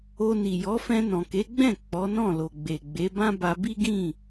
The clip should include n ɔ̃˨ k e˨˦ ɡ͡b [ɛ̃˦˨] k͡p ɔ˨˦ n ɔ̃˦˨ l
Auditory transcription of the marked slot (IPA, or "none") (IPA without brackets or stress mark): ɛ̃˦˨